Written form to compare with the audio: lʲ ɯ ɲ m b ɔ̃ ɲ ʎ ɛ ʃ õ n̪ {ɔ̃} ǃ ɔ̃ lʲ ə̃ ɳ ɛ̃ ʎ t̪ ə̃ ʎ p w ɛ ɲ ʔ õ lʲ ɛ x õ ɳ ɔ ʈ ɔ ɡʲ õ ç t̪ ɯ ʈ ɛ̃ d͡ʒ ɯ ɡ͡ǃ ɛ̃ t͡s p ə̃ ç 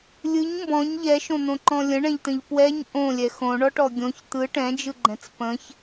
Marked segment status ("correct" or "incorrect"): incorrect